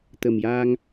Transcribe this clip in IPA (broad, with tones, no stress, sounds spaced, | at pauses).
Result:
t̪ ə˨˩ m j aː˧ ŋ